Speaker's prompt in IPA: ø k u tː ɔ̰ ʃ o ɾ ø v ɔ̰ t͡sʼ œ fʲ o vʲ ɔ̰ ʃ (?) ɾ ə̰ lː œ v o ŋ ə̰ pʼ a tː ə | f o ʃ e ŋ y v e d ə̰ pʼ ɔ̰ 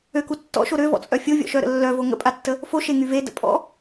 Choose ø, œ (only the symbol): œ